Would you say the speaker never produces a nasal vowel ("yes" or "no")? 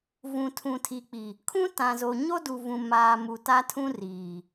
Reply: no